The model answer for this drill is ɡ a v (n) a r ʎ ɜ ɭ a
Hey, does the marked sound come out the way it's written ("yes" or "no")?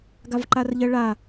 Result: no